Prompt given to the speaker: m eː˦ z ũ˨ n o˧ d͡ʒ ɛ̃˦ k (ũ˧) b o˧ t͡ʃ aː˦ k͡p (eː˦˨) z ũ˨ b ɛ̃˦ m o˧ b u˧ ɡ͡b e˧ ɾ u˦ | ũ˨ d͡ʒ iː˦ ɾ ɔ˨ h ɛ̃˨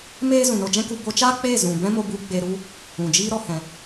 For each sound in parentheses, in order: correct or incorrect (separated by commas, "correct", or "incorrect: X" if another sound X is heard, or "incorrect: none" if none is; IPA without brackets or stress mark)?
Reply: incorrect: u˧, correct